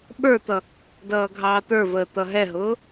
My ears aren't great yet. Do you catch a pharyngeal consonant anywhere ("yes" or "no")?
no